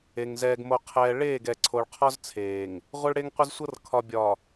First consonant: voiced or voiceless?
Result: voiced